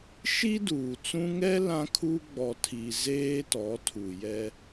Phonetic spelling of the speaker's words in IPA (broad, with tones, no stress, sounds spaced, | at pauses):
ʃ i˦ d uː˨ t͡s ũ˦ ŋ ɛ˦ l ã˦ kʰ u˦ ɡ͡b ɔ˨ tʰ i˨ z eː˦ t ɔ˨˦ tʰ u˨ j ɛ˦